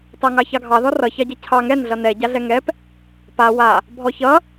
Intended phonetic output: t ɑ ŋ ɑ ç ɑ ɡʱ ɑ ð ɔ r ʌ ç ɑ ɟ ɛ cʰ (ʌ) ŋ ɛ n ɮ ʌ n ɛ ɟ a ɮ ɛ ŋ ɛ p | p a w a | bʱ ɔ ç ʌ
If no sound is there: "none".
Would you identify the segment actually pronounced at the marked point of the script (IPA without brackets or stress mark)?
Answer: ɑ